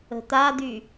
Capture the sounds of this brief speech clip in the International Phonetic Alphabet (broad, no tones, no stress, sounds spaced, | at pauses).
ə̤ t̪ a d̪ y